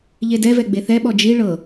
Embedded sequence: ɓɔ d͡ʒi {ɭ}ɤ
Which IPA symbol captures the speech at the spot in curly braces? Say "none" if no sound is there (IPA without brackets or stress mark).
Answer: ɭ